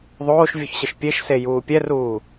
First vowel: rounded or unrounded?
rounded